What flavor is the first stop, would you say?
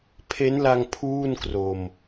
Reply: aspirated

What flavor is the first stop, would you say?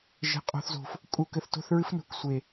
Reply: ejective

